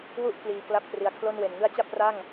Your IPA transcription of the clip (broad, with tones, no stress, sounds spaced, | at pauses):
w u˥˩ ʔ k l iː˨˩ k l a˦˥ p̚ t r i˨˩ a̯ kʰ l o˥˩ n w e˨˩ n ŋ ɯ˦˥ a̯ t͡ɕ a˥˩ p̚ r a˥˩ ŋ